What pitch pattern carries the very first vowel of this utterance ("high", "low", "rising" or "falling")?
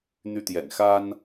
high